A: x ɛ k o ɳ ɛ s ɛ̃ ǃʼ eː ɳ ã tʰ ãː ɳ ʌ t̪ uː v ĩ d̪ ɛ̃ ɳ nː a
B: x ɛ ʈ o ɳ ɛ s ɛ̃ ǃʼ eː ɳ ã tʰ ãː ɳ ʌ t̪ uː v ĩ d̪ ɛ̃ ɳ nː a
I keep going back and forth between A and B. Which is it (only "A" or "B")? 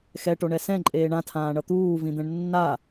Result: B